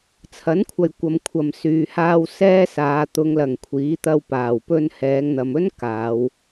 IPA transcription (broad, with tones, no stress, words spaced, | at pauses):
t͡sʰɐ˨˥nkʷʰɐ˨j kʷɐ˨mkʷʰɐ˨msyː˨haː˧w sɛː˥saː˨˧ t̪ʊ˨˧ŋlɐ˨˩ŋ kʷʰiː˨˥t̪ɐ˧wpaː˨˩w pɵ˧n hɛː˨˧ŋn̪ɐ˨mɵ˥n kaː˨˧w